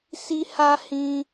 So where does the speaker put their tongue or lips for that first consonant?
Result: tongue tip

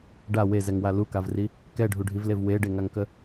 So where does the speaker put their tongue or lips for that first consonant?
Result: retroflex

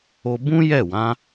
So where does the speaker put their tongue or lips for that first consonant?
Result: lips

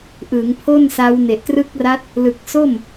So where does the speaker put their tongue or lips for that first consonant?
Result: throat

